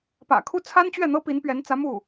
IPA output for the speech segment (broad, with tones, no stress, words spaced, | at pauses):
pä̰˨˩kʰu˥ t͡sʰa˥nt͡ɕɥɛ˥˩n̪ɤ˥ pi˧˥npɥɛ˧˥nt͡sä˧˥ mu˥˩